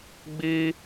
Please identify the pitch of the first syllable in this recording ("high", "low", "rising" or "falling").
high